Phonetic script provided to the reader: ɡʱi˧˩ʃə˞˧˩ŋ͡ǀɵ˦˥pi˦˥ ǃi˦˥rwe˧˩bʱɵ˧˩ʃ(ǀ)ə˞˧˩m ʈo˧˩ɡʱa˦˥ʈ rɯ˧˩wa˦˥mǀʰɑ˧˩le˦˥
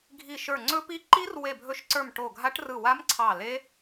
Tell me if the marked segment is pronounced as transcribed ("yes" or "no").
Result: yes